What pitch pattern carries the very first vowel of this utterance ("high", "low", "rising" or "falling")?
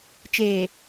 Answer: low